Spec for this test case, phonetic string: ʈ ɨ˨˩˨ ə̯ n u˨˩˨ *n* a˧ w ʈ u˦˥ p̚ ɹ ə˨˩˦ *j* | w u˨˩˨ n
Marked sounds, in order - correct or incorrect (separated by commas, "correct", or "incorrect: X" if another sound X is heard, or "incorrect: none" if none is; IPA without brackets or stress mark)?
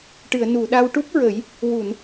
incorrect: ɗ, correct